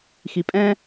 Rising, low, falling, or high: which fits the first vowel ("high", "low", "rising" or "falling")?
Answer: low